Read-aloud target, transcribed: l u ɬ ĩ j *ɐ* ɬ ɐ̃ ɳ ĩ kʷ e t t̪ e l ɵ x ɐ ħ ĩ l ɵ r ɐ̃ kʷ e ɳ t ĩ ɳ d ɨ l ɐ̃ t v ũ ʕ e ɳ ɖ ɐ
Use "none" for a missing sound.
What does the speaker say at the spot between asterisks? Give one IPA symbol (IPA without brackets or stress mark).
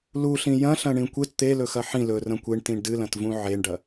ɐ̃